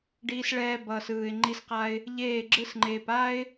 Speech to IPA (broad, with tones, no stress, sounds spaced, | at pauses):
ɖ iː˦ s ɭ ɛː˦ b ʌː˨ s ɯː˨ ɪ̯ ŋ͡ǃ i˦ s q a˦ ɪ̯ | ʎ eː˦˨ ɡ͡ǁ ɯ˦ s ŋ͡ǃ eː˨ p a˦ ɪ̯